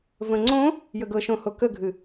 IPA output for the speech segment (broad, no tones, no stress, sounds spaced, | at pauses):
v ə̃ ŋ͡ǀ õ | j ə ɡ ɤ ʃ õ h o k ə ɡʱ ɨ